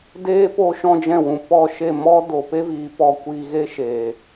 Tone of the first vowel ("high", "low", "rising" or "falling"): high